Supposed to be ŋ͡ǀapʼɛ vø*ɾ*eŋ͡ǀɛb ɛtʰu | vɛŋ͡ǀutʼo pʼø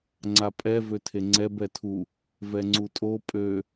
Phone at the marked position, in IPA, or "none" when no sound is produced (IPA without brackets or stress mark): tʰ